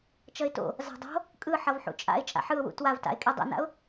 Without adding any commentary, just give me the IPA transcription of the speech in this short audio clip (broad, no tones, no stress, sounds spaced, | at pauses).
t͡ʃ ʌ ɪ̯ t o̰ | z a̤ dˤ o̤ | kʼ ɯ ħ ʌ v ħ ṵ t͡ʃʼ a̰ ɪ̯ t͡ʃʼ a̰ ħ ɯ ʊ̯ w ṵ t w a v t a̰ ɪ̯ kʼ i dˤ ḛ n a̰ ʊ̯